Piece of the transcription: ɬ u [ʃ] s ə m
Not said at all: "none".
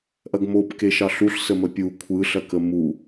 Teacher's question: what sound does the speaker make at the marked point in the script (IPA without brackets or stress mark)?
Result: ɬ